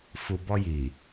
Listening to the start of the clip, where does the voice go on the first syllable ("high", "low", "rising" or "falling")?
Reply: low